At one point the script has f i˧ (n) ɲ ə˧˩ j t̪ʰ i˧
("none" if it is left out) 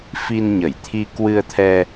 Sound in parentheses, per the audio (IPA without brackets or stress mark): n